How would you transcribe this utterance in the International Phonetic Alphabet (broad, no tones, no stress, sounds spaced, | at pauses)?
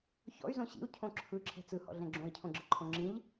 ç ɔ̰ y̯ z õ ɕ ḭ u̯ cʰ õ ǁʰ ɯ ǁʰ ɛ̤ t͡s ɯ h ɔ̰ ɮ ɛ̃ ɡ͡ǁ õ i̯ cʰ õ ɡ͡ǁ ə ǃʰ õ ŋ͡ǁ ĩ ʎ